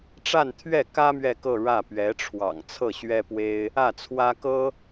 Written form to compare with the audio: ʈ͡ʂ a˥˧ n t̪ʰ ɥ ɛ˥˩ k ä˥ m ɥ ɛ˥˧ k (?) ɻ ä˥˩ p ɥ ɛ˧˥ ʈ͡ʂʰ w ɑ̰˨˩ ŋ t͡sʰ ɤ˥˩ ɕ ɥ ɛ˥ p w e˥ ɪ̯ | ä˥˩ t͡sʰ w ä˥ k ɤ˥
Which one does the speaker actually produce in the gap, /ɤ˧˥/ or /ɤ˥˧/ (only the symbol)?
ɤ˥˧